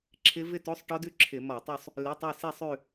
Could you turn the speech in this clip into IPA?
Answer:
ǁʰ ɪ˦˥ v ɪ˥˧ t o˧˥˧ sˤ ʈ ɔ˦˥ d ʉ˦˥ ǁʰ ɪ˧˩˧ m ɔ˧˩˧ tˤ u˥˧ sˤ | l ɪ˧˥˧ tˤ ø˥˧ s i˥˧ sˤ ʉ˥˧

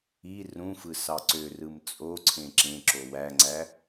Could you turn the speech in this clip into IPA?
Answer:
i r ũ f ɯ s ɑ ǀ ø r ɯ m t͡sʼ o ǀʰ ẽ ǁ ẽ ǁ o w æ ŋ͡ǀ æ

